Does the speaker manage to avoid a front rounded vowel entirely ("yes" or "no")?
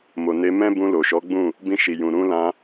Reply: yes